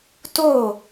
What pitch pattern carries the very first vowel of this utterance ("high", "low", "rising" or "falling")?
falling